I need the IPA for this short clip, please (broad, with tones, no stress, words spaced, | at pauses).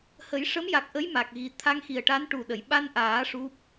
hə˨˩˦j ʂə˧˥mja˨˩k̚ ʔə˧˥jma˨˩k̚ɣi˨˩ t̪ʰa˧ŋxi˨˩ə̯ʈa˧˥n ʈu˨˩ɗə˨˩˨jɓa˧nʔaː˨˩˦ ʂu˦˥p̚